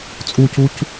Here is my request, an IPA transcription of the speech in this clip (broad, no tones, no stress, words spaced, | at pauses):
t͡sʼucuc